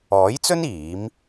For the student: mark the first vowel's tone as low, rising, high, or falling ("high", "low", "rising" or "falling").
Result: rising